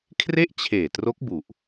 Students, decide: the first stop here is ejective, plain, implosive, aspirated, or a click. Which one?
aspirated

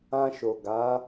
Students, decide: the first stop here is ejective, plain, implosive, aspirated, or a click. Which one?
plain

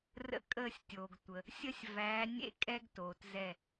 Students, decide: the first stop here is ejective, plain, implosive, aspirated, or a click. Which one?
ejective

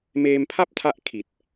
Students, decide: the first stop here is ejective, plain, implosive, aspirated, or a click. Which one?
aspirated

